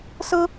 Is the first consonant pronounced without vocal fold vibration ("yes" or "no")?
yes